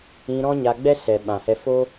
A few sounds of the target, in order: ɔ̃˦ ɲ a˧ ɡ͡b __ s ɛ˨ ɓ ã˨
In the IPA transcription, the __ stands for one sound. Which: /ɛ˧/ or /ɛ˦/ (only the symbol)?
ɛ˦